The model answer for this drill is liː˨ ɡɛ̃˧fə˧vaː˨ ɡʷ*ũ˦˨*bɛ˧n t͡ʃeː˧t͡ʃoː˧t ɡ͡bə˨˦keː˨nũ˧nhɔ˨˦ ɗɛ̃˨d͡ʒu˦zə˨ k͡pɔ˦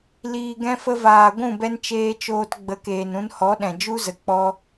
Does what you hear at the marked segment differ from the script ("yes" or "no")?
no